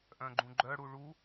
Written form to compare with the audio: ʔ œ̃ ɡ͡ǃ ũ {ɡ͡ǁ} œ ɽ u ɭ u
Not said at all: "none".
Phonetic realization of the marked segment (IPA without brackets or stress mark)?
ɡ͡ǃ